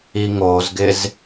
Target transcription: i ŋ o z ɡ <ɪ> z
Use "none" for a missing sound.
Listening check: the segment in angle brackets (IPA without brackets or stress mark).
ɪ